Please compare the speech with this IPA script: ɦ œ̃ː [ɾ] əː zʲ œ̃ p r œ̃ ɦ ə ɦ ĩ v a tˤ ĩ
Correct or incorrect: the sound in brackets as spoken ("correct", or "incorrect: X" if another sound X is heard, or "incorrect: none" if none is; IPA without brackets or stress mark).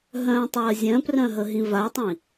incorrect: tˤ